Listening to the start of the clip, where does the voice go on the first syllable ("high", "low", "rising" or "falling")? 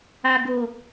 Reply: low